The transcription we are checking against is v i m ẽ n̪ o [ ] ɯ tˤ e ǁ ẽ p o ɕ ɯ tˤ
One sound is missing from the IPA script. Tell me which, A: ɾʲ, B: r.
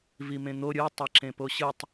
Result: A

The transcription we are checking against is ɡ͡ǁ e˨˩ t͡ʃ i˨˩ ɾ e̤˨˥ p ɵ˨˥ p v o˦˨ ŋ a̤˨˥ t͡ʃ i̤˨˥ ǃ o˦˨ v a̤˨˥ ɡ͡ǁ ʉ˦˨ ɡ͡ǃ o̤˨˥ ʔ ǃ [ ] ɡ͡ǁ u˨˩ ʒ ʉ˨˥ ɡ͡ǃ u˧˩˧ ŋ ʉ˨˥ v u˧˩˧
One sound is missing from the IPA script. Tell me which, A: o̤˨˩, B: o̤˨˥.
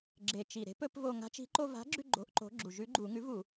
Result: B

